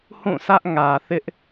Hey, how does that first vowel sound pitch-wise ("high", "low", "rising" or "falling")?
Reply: falling